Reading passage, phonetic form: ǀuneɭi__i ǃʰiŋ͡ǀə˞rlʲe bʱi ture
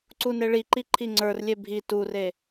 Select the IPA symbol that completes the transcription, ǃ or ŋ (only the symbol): ǃ